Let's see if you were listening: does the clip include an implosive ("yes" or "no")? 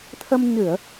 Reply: no